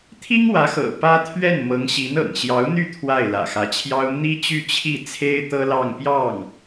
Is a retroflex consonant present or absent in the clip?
absent